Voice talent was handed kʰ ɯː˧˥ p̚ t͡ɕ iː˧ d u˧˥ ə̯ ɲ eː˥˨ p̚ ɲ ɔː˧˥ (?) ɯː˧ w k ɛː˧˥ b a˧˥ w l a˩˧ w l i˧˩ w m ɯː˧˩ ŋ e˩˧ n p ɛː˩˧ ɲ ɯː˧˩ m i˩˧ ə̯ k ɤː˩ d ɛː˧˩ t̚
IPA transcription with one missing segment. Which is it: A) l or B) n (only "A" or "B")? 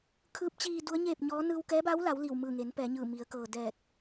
B